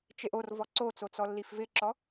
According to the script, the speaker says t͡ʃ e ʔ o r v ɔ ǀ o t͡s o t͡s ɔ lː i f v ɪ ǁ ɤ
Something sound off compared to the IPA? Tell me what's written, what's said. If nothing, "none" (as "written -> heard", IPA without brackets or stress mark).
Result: ɤ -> ɔ